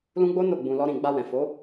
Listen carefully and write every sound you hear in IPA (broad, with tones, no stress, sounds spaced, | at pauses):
l ũ˦ ɡ͡b o˦ n o˦˨ ɡ͡b ũ˧ l ɔ˦ ɾ ĩ˦˨ ɡ͡b a˧ w ɛ̃˨ f o˨˦